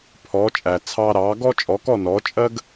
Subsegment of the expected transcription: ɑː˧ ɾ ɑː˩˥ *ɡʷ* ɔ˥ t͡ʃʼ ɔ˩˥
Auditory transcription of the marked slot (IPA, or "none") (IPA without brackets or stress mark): ɡ